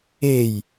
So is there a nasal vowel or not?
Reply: no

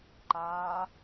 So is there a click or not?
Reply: yes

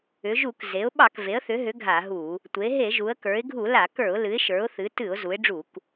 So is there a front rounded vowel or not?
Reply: yes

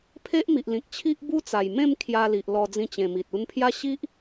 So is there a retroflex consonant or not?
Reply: no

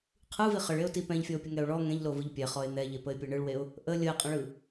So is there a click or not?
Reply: no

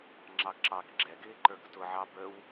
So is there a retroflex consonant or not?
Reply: no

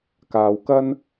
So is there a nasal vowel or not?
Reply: no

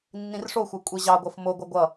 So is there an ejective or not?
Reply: yes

